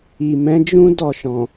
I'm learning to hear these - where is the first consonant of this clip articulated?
lips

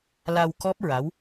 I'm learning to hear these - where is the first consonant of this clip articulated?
tongue tip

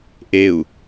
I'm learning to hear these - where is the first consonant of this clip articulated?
throat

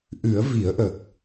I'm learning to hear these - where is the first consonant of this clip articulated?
throat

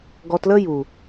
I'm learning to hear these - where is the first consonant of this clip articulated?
velum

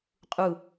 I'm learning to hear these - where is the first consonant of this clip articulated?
uvula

